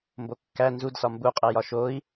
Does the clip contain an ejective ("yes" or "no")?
yes